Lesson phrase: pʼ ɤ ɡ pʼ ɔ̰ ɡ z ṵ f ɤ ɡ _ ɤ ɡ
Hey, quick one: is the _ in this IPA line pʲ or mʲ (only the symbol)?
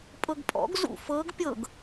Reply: pʲ